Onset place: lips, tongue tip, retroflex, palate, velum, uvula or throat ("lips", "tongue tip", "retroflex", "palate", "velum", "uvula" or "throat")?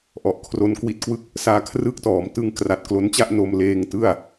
throat